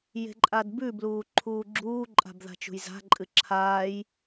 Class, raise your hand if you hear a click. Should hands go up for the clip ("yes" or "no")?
yes